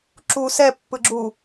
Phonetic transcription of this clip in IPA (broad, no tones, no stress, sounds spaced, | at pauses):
ǁ u s ɛ pː ɯ ɡ͡ǁ u